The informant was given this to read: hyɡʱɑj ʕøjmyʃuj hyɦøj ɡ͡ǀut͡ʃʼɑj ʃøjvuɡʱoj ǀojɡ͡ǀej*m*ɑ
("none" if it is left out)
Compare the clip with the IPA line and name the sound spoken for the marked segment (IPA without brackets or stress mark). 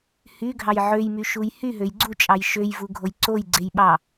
ɓ